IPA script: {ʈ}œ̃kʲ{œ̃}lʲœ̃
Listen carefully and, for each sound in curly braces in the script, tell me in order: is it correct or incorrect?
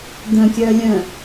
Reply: incorrect, incorrect

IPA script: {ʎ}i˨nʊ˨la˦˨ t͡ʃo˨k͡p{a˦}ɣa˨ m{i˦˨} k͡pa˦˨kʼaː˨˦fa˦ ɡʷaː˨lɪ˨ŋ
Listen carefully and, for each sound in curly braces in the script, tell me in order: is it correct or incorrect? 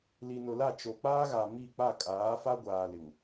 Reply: incorrect, incorrect, correct

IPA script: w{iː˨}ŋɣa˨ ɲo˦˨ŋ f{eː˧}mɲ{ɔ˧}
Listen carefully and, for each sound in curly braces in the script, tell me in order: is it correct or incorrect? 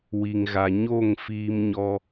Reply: incorrect, incorrect, correct

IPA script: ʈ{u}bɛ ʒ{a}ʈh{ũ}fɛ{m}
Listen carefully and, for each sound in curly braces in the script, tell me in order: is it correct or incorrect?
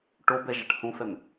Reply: incorrect, correct, correct, correct

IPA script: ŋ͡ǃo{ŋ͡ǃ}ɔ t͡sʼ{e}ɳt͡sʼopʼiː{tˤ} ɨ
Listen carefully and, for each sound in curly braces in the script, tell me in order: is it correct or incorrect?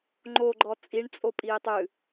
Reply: incorrect, incorrect, correct

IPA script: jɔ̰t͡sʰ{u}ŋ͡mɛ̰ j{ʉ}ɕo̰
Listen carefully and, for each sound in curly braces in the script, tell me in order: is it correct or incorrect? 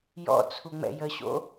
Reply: correct, incorrect

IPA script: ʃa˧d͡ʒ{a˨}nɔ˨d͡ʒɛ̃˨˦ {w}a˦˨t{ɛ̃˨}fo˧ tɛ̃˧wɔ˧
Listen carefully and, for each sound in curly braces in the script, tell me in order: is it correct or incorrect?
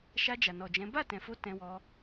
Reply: correct, incorrect, correct

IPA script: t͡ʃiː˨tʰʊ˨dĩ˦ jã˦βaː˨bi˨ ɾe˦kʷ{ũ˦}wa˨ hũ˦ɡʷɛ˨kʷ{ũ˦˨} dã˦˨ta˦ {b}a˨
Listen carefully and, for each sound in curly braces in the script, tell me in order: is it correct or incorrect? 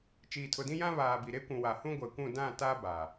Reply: incorrect, correct, correct

